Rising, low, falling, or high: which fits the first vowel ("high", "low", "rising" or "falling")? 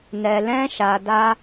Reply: low